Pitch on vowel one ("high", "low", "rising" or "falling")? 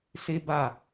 high